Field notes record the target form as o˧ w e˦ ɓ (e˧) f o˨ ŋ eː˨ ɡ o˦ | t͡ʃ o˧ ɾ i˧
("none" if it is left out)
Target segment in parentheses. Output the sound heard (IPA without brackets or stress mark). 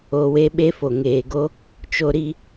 e˦